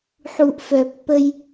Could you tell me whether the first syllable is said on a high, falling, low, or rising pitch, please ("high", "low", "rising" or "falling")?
low